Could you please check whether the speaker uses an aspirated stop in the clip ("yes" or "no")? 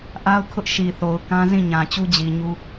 yes